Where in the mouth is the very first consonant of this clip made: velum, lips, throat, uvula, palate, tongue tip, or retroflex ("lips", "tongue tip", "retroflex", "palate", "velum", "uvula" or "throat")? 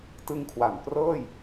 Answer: tongue tip